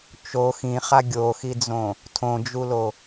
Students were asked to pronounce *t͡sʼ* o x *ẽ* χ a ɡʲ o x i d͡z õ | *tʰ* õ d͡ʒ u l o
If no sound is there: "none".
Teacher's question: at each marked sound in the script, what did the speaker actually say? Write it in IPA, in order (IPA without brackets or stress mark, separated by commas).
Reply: t͡ʃ, ĩ, tʰ